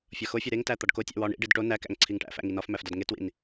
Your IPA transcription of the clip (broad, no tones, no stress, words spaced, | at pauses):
fʲɒxofʲe ɾeŋtæ t̪ɒɖkotʲæ̰ wɒ ɳḭɖid ʈo nækæ̰ŋ ǀʰiŋʈæ̰fæ̰ ŋinɒfmæf dɒdŋetwḭn